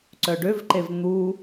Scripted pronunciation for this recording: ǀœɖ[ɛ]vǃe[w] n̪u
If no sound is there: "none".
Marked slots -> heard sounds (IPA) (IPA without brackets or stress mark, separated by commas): ø, v